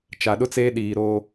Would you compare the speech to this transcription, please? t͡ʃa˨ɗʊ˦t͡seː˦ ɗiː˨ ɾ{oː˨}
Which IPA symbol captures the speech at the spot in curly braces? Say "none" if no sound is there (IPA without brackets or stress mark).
oː˦